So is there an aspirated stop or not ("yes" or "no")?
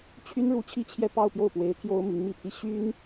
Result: yes